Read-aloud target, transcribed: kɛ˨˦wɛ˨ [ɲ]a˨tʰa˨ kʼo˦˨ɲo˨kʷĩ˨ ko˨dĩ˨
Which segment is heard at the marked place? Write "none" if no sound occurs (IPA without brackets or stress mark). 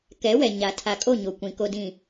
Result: ɲ